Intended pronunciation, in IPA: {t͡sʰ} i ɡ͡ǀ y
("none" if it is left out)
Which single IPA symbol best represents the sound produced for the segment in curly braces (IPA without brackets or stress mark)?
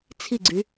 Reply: t͡sʰ